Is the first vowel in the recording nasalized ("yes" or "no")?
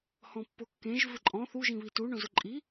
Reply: yes